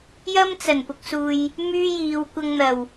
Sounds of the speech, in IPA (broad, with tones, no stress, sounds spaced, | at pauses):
j ɐ˥ m t͡s ɐ˨˩ n p ʊ˨ k̚ s uː˨ j | m yː˥ j iː˨ w kʷ ɐ˧ ŋ n̪ ɐ˨˩ w